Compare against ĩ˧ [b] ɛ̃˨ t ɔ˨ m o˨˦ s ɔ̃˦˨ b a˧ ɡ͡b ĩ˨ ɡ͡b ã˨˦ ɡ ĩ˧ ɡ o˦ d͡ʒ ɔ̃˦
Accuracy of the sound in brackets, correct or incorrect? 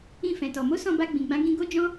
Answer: incorrect